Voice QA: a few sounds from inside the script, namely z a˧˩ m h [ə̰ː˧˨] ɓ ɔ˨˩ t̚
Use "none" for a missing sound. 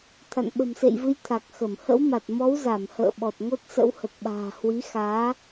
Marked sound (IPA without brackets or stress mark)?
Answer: ə̰ː˧˨